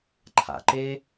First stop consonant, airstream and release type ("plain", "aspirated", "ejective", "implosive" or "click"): click